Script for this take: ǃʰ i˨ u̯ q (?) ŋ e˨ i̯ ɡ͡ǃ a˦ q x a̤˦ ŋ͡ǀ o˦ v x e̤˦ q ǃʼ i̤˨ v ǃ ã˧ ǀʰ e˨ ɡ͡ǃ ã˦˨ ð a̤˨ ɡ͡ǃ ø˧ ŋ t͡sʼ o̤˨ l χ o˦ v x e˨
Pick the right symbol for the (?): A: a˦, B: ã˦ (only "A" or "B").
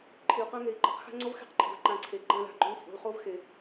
B